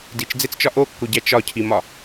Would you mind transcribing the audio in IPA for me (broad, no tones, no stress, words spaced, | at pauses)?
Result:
dit͡ʃd͡zet͡st͡ʃɒ ʔokːoɟæ t͡ʃɒcʰimɒ